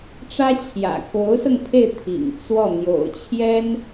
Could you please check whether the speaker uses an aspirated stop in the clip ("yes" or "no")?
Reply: yes